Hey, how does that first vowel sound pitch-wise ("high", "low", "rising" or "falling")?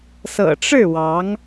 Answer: low